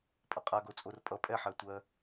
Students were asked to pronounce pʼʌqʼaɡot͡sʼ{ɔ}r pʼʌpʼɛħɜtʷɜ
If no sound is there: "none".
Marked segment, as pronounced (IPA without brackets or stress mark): o